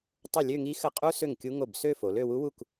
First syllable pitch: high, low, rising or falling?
falling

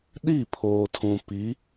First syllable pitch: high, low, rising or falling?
falling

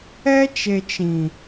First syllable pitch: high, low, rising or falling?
high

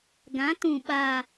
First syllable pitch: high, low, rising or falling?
rising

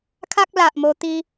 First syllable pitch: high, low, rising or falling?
high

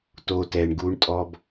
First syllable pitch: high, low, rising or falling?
high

